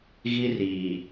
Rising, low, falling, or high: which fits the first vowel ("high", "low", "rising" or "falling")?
high